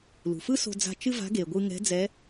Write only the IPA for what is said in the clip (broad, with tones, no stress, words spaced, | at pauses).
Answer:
lṳ˩fɯ˥so̤˧d͡za̤˧ t͡ʃɨ˥va̤˧˥ ɡe˩ɡʷɯ˧ ŋɛ̤˧˥d͡zɛ˧˥